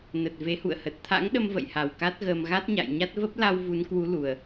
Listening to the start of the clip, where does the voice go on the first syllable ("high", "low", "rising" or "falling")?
low